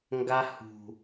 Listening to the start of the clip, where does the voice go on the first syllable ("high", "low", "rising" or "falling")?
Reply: high